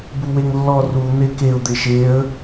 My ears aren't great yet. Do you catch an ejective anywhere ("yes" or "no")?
no